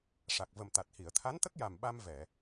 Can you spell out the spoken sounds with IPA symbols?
ʂa˨˩k̚və˨˩m t̪a˨˩t̚hi˨˩˨ə̯ t̪ʰa˧˥nt̪ə˦˥k̚ja˨˩m ɓa˧mvɛ˨˩˨

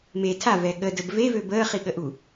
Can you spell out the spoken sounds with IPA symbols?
me tʰavɛ ɠədəb vevø bəːχiɠəʔu

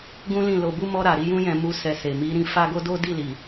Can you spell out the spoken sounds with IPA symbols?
ɡũ˦lĩ˦˨ lo˧bu˦mɔ˦ ɾa˧ɾi˦ jũ˦jɛ̃˧ mu˧ sɛ˧se˨ mi˨˦ɾĩ˧ fa˦ɡo˦ do˦di˦˨ li˨

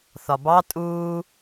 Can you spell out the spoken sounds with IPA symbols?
θɒbɑ tʼuː

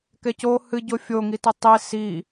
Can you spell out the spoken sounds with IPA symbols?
kɛco hɨ ɟofʲo ŋitetˤi si

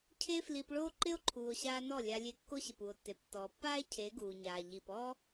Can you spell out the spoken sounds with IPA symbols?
cʰe˦fli˧pɭoː˦ ǃɪ˦o̯ǃʰuː˨o̯ɕaː˧ nɔ˦˨lʲa˧lʲe˧ kːo˦ɕɪ˨p u˨o̯tːe˨ptːɔː˨ pːaː˦e̯ cʰe˨˦ ɡuː˨ɲaː˨ ʎi˨pɔː˦

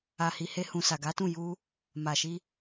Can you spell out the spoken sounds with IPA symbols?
a˨hi˨he˧hũ˨ sa˨ɡa˨˦tũ˦˨ ju˧ | ma˨ʃi˧

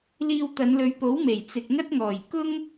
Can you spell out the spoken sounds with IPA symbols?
liː˧wt̪ɐ˨˧nlɵ˨˧ɥpo˨˥w me˨˩jt͡sɪ˨k̚ŋɐ˥t̚ŋɔː˨˩j kʊ˥ŋ

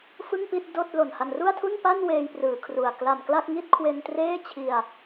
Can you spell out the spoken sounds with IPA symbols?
fɯ˥˩ŋpi˥˩t̚ doː˥˩t̚lo˨˩nha˧n ru˥˩a̯tʰu˥˩npa˥˩n weː˧j prɯː˩˦kʰru˨˩a̯ kla˨˩mkla˥˩k̚ ŋi˥˩t̚kʰwe˧ntreː˥˩ t͡ɕʰi˧a̯

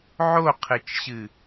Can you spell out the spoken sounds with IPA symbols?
ʕoqʰɨt͡ʃɕɨ

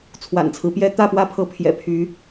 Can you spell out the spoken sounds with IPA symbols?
t͡sʰwa̰˨˩nt͡sʰɹ̩˦pjɛ˦ t̪ä˥˨pwä˦pʰɤ˨˦ pʰjɛ̰˨˩pʰy˨˦

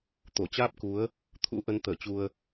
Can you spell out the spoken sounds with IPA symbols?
t̪o˧˩t͡ɕaː˦˥p̚ku˨˦ə̯ | t̪ʰṵ˧˥ʔə˨˦n t̪əː˧˩t͡ɕu˧ə̯

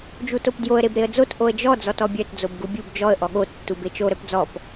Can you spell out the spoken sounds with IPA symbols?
d͡ʒutopdjoə̯ ɾebɾeə̯d͡zot ʔoə̯d͡ʒɔ d͡zɔtɔbʲœt d͡zobɡubʲub d͡ʒɔə̯ ʔɔɠo tːubet͡ʃo ɾœpd͡zɔp

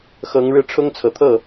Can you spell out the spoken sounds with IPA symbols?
xɤ˧˥ŋ ɻɻ̩˥˩ʈ͡ʂʰʊ˥ŋt͡sʰɤ˨˩t̪ʰɤ˥˩

